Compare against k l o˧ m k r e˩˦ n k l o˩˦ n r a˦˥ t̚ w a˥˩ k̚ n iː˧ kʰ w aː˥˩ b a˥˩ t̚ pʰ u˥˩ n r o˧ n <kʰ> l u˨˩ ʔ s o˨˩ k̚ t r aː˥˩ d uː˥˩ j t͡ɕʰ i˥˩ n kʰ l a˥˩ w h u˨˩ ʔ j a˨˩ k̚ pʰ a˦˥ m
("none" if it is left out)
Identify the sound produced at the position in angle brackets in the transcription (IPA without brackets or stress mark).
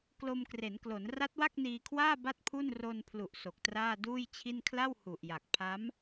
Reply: pʰ